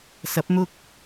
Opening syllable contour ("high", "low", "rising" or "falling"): rising